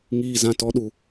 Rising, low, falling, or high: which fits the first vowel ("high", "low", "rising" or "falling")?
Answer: low